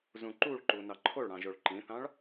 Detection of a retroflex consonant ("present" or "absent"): present